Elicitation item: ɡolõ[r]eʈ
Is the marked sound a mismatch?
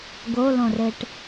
no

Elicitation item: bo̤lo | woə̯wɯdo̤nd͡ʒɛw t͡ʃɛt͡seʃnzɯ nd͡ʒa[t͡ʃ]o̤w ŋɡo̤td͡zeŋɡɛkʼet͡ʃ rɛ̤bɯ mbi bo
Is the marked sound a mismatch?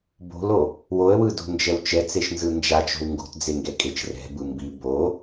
no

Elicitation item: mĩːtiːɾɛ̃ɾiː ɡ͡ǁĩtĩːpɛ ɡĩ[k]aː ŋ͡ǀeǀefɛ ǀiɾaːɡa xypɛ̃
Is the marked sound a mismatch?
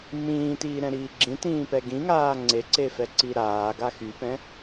yes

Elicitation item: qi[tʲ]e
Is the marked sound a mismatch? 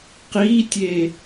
no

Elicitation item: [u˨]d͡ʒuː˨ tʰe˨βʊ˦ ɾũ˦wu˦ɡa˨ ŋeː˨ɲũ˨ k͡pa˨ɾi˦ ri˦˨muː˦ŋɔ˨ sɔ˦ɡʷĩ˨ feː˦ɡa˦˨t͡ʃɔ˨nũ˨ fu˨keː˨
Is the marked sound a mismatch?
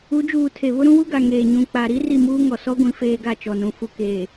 yes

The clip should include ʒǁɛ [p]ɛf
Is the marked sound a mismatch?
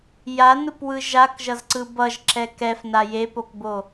yes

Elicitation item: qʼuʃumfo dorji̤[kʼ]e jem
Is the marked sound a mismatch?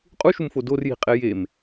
yes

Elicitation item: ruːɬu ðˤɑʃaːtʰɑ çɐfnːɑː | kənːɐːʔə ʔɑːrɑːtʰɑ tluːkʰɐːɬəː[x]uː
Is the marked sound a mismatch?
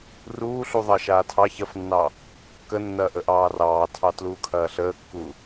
yes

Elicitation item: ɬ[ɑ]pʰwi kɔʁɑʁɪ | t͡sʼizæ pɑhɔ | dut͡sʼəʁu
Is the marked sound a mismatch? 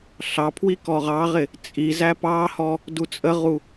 no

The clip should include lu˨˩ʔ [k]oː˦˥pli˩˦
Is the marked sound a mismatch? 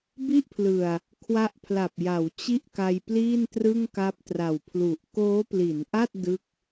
no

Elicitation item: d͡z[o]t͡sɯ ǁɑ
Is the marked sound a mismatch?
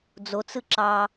no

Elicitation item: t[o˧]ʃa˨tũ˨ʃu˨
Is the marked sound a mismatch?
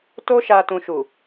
no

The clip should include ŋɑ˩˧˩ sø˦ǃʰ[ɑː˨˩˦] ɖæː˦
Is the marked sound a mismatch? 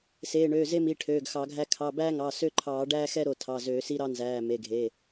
no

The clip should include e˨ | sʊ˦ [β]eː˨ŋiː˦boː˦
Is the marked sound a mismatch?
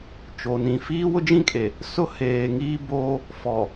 yes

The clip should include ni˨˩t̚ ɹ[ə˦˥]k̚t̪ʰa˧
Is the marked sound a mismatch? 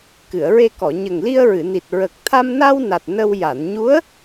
yes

